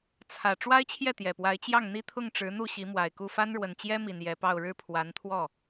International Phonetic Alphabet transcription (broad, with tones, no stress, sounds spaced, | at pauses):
t͡sʰ ä˨˩ ʈ͡ʂ w a˥ ɪ̯ t͡ɕʰ j ɛ˥˩ t̪ j ɛ˨˩ p w a˧˥ ɪ̯ t͡ɕ j ɑ˥˩ ŋ n̪ i˥ t̪ʰ ʊ˥˩ ŋ ʈ͡ʂ ɻ̩˧˥ n̪ u˥˩ ɕ i˧˥ m w a˨˩ ɪ̯ k u˥˩ f a˥ n ɻ w ə˨˩ n t͡ɕ j ɛ˥ m i˨˩ n j ɛ˧˥ p ɑ˥˧ ʊ̯ ɻ ɻ̩˥˩ pʰ w a˧˥ n t̪ʰ w ɔ˥˩